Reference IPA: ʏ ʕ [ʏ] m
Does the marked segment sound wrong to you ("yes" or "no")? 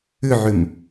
no